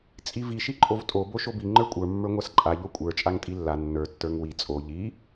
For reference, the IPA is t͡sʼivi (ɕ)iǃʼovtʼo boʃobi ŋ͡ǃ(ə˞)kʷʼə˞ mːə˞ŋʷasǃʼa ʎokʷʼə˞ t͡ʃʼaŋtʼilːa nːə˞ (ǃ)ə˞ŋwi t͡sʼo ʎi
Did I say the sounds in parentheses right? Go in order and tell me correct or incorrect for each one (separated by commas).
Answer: incorrect, correct, incorrect